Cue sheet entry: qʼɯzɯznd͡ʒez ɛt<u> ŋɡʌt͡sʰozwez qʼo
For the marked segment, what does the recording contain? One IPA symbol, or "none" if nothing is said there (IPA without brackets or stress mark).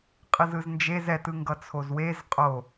ɯ